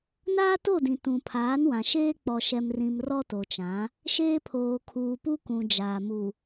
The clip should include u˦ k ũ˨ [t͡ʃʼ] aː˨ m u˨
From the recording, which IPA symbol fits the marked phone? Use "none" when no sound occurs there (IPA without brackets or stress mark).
d͡ʒ